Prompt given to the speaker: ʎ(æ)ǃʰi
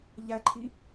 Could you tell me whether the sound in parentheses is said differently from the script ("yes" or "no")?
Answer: no